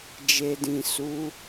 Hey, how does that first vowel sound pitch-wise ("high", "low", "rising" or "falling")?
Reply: low